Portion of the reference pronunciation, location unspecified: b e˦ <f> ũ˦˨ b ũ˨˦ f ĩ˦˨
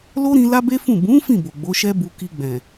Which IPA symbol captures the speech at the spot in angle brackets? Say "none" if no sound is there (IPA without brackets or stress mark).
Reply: f